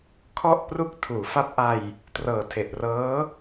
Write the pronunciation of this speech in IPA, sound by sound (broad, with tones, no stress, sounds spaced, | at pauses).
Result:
kʰ ɔ˥˩ ʔ p r u˦˥ k̚ tʰ uː˩˦ f a˦˥ p̚ ʔ a˧ j | t r ɤː˨˩ tʰ e˨˩ ʔ r ɤː˦˥